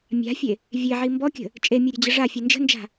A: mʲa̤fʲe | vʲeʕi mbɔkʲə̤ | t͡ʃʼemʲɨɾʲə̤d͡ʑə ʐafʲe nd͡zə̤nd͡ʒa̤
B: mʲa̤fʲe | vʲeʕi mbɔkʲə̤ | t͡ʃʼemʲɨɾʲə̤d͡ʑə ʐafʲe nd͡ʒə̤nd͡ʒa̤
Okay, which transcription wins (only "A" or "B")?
B